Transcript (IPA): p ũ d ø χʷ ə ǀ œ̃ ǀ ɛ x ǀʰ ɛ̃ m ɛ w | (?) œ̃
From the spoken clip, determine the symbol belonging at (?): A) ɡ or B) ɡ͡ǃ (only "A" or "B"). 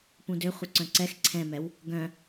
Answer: A